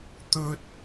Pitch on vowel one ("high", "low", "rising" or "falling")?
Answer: high